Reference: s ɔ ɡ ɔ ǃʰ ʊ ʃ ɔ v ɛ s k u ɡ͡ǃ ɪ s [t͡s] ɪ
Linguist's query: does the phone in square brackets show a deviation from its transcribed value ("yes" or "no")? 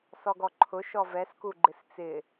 no